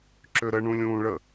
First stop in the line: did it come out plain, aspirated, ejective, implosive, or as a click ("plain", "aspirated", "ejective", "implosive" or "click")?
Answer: click